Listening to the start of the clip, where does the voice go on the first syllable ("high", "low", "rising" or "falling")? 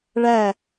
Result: falling